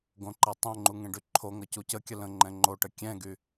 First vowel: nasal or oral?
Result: nasal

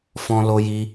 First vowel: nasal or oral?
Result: nasal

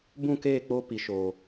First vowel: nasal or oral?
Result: nasal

